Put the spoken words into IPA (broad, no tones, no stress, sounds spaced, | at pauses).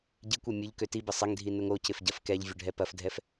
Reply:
ɟ i kʷ ø mʲ ʊ ʎ k ø t i b ɪ sˤ ɪ ŋ dʱ i n ʊ ŋ o c ɪ f ɟ ɐ f k ɛ ʎ vʲ ʊ ɖʱ ɛ p ɐ f dʱ ɛ f